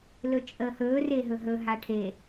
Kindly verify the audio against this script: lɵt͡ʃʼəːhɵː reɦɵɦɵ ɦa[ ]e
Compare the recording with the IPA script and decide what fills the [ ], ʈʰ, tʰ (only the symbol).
ʈʰ